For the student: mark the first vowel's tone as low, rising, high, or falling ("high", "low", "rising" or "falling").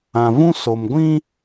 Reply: low